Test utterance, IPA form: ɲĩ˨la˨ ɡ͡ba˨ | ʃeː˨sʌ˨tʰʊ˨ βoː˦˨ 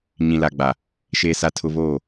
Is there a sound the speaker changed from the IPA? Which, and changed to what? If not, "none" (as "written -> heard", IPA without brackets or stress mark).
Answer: ʌ˨ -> a˨